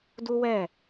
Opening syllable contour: high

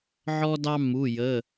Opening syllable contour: high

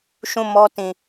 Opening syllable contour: falling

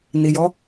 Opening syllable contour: low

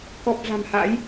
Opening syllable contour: low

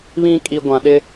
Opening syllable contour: high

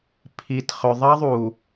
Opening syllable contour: low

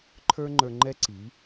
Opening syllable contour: high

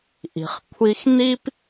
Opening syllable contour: low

